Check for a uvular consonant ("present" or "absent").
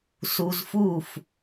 absent